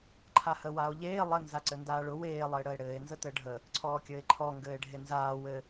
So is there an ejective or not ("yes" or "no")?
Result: no